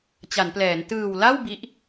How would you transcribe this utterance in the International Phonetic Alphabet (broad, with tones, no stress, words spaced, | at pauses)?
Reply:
t͡ɕa˩˦nplɛː˩˦n tɯː˨˩wla˥˩w bi˦˥ʔ